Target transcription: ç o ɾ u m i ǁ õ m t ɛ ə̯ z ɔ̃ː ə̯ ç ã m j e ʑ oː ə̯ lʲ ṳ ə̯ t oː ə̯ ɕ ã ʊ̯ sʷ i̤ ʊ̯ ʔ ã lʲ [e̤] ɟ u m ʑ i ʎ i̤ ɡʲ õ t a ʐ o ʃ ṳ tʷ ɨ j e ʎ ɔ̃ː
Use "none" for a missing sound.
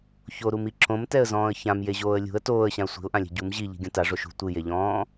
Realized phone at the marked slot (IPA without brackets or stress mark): e̤